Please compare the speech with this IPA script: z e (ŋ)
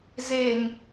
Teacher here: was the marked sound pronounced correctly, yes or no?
yes